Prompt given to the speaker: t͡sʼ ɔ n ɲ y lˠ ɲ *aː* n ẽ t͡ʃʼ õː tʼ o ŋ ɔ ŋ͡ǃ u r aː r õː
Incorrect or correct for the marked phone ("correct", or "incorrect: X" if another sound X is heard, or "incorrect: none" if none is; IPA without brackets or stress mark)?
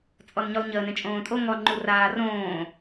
incorrect: əː